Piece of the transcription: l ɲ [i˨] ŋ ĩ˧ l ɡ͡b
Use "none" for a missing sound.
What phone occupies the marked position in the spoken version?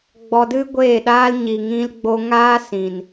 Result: i˨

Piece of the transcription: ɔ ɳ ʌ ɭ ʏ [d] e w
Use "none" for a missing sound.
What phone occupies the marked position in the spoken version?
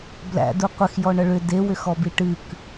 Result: d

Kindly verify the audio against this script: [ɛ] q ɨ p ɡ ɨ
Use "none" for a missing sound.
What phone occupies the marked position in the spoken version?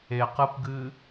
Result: e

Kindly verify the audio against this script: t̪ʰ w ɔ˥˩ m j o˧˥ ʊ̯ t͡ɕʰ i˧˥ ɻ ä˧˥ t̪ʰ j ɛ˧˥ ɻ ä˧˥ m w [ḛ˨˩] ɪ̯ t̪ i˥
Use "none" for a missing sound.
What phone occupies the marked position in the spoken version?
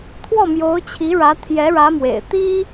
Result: ḛ˨˩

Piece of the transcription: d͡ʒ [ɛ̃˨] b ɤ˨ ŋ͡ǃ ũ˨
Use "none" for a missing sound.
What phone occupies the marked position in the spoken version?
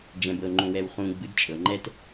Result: ɛ̃˨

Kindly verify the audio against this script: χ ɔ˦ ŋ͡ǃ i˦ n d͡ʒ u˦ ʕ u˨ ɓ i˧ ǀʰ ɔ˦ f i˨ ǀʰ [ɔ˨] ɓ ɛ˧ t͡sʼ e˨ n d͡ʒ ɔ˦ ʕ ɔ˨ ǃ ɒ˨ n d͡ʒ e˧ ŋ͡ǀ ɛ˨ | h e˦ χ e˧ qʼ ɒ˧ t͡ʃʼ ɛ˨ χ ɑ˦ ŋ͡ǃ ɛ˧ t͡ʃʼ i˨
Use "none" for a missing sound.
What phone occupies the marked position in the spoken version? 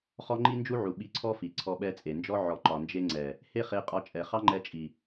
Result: ɔ˧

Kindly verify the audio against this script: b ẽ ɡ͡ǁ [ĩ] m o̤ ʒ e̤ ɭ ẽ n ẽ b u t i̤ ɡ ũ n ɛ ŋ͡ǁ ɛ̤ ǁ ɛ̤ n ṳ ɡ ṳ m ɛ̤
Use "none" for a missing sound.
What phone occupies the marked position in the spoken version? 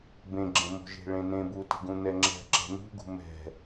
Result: ẽ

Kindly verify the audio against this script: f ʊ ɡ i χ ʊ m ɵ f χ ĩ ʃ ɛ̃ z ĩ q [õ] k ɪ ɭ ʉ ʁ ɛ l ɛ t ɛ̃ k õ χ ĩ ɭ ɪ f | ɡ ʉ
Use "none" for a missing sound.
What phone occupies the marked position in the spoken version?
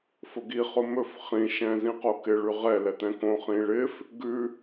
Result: o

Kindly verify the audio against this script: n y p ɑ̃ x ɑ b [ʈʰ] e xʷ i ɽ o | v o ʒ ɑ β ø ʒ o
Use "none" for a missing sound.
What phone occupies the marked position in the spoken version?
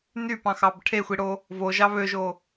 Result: ʈʰ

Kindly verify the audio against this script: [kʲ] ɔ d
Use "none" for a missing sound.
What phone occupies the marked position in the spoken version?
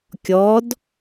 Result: kʲ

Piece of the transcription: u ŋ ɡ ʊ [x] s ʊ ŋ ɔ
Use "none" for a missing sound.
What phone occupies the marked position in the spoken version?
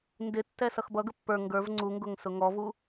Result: ŋ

